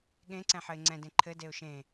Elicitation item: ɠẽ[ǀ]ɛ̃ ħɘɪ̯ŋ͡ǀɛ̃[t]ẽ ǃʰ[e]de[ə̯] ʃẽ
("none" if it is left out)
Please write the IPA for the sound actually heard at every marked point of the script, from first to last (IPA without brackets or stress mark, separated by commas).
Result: ǀ, d, ɘ, ʊ̯